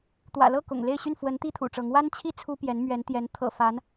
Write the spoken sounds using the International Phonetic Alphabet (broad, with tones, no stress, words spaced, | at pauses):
t̪wä̰˨˩lɤ˥˩ kʊ̰˨˩ŋle˥˧ɪ̯ ɕy˥˩nfwə˧˥n t̪i˥ t̪ʰṵ˨˩ʈ͡ʂɤ˧˥ŋ wa˥nt͡ɕʰi˥ t͡sʰu˥pjɛ˧˥n mɥɛ˧˥nt̪jɛ˧˥n t̪ʰɤ̰˨˩ fa˧˥n